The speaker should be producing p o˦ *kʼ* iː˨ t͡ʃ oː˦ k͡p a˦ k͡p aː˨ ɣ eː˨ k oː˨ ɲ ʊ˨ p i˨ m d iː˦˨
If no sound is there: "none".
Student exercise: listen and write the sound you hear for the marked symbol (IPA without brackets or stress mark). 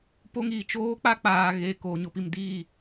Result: ŋ